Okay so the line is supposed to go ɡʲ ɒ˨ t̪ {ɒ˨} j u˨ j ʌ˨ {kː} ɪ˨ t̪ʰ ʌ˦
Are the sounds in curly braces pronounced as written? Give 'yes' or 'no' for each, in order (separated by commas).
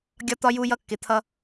yes, yes